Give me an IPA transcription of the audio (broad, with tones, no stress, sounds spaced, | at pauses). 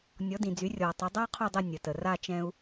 nʲ ɔ˩˥ d ĩ˩ d͡z y˩˥ rʲ ɔ˩ tˤ ə˩˥ dˤ a˥ qʰ u˥˩ dˤ ə˥˩ nʲ ə˩ t ə˩ r a˥˩ t͡ʃ ɛ̃˧ u̯